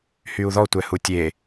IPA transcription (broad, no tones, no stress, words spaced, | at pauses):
hyu̯ðɔ tʷɛhutʲe